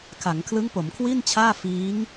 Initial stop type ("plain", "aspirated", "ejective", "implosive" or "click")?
aspirated